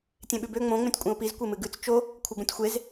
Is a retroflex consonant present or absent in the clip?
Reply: absent